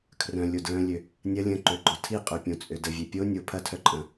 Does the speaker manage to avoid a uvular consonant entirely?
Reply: no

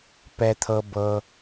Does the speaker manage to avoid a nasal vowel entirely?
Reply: yes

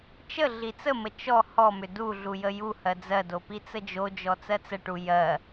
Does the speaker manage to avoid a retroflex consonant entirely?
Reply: no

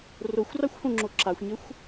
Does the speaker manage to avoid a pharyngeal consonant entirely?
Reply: yes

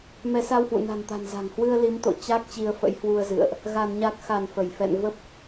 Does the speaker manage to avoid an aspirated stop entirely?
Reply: yes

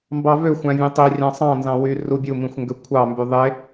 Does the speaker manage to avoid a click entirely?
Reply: yes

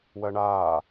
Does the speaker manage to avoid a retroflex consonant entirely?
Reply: no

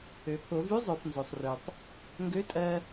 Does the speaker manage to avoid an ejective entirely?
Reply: no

